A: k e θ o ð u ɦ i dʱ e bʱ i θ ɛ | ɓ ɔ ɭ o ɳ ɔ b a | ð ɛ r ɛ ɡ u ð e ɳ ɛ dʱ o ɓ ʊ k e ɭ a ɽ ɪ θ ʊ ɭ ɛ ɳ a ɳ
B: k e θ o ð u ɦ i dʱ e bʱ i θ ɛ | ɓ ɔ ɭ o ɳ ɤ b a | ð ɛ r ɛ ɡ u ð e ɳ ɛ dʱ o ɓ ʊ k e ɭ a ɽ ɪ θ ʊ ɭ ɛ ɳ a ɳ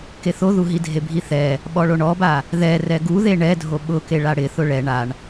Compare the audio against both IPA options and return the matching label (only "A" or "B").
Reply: A